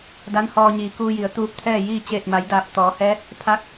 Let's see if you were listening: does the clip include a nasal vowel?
no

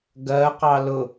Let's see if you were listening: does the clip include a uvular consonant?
yes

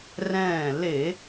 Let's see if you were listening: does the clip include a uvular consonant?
no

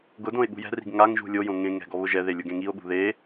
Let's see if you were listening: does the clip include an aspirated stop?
no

